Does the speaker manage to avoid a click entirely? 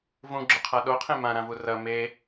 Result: no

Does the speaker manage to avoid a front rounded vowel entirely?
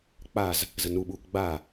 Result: yes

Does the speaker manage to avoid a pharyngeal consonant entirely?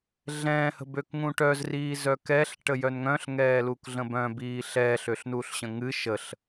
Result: yes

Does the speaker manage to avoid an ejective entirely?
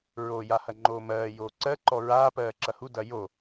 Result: yes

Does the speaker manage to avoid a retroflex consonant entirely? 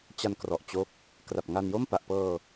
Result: yes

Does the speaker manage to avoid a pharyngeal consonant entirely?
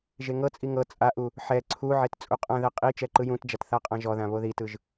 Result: no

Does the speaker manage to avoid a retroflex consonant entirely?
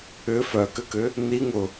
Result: yes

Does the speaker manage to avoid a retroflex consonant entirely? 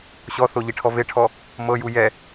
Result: no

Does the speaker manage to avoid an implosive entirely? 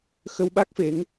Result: no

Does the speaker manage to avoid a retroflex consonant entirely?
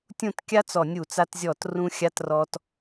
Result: yes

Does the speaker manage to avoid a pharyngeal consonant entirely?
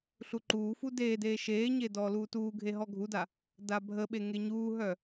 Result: yes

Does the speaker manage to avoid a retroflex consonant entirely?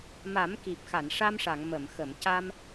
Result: no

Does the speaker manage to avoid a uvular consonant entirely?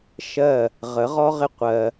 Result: no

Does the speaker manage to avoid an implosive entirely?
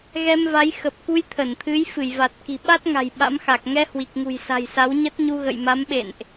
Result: no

